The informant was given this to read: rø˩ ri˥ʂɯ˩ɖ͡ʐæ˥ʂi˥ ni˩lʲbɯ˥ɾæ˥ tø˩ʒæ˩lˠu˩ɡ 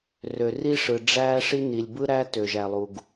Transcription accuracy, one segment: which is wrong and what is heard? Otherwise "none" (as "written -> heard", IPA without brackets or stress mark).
none